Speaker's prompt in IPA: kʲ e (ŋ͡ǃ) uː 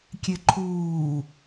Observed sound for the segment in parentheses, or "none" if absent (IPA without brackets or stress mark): ǃʰ